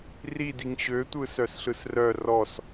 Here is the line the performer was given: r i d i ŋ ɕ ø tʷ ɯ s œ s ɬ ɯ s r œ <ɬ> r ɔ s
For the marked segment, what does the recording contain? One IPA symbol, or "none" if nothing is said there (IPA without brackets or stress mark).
none